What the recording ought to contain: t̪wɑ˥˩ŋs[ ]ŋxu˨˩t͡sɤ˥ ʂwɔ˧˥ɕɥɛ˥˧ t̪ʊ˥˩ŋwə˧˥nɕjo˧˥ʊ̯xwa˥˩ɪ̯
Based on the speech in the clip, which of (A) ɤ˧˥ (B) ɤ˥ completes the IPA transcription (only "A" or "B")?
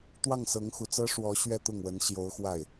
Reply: A